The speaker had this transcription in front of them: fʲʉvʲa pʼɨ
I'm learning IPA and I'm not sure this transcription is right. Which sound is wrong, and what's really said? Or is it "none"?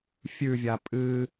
none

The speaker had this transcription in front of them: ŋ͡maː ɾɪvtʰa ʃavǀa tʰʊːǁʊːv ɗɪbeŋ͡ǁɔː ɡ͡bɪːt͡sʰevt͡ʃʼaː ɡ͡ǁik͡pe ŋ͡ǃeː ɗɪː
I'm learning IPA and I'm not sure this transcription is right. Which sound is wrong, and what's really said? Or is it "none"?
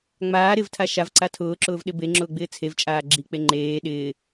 ɔː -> ʊː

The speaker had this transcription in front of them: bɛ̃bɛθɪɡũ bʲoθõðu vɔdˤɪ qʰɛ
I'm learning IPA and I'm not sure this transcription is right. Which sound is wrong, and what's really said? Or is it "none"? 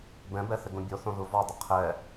none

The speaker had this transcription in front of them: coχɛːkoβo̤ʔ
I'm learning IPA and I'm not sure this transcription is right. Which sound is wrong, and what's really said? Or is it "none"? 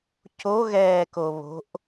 χ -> ɣ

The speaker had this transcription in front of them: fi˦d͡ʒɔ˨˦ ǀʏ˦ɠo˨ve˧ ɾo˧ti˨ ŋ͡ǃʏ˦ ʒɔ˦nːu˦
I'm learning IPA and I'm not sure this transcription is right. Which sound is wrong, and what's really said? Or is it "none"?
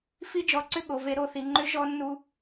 t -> θ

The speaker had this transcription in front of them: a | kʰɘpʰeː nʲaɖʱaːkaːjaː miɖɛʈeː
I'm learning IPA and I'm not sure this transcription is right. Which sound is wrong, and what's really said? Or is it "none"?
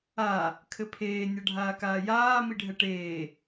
ɖ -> ɖʱ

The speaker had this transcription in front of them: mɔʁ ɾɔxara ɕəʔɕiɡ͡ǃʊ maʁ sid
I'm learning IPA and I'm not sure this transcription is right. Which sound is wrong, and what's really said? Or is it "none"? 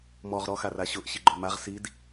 ə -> ʊ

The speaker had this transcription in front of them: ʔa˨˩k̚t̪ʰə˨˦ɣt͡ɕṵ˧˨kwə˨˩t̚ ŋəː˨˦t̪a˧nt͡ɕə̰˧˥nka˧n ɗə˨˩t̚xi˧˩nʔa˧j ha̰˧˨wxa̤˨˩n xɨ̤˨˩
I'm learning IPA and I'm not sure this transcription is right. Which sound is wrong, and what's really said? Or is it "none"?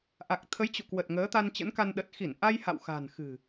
ɣ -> j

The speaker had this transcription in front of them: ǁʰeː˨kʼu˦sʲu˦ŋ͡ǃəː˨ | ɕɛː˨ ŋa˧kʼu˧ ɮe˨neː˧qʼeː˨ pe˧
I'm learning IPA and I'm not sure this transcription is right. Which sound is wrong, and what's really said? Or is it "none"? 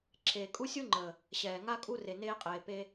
ɮ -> r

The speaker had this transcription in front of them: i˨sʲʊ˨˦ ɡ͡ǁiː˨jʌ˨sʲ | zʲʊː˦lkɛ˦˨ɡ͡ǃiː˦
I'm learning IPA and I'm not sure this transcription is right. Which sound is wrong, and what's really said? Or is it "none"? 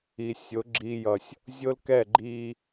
none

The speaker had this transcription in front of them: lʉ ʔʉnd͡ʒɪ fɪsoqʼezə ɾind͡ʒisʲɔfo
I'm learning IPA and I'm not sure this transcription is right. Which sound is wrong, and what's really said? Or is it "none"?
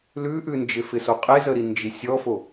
none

